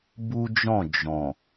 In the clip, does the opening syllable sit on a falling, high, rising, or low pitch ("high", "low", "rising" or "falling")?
high